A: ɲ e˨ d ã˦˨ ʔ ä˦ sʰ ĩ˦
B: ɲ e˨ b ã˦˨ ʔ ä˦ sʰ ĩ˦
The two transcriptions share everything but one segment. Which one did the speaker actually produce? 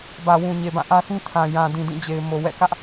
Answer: B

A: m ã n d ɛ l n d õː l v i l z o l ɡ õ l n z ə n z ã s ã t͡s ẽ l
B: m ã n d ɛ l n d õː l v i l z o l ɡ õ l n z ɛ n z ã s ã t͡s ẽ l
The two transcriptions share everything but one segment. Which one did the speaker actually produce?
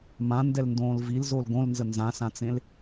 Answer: A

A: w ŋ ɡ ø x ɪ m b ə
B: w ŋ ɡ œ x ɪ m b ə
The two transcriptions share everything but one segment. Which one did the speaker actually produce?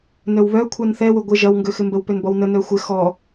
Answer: A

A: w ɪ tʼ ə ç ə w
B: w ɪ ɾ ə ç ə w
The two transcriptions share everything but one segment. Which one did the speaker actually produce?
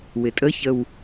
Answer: A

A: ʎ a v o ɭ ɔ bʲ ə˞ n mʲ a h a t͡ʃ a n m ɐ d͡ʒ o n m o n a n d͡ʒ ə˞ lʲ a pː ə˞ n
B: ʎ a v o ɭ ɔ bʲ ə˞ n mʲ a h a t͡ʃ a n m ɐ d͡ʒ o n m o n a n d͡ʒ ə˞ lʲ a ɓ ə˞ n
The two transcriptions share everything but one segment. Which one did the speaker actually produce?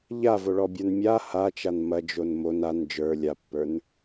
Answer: A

